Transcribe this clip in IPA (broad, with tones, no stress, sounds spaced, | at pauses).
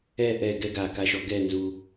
ɛ˥˧ ʔ ɛ˧˩ ɡ ɛ˥ ɡ a˧˩ k a˧ ʃ ɔ˧ ɡ ɛ˥˧ n z u˧